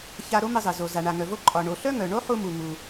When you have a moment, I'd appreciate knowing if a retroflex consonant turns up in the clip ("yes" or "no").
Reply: yes